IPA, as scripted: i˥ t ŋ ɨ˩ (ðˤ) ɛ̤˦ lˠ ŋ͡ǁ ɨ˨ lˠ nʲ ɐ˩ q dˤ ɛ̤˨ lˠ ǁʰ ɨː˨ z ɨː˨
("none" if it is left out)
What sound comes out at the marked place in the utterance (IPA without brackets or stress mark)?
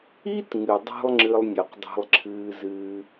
dˤ